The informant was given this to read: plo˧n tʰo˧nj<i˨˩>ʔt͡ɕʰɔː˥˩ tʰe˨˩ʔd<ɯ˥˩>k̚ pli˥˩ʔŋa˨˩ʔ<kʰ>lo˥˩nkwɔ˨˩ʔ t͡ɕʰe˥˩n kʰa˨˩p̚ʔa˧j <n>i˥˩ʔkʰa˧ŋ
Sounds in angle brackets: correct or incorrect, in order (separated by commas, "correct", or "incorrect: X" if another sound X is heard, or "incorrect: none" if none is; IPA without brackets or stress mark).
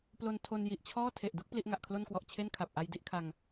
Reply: correct, incorrect: u˥˩, correct, incorrect: d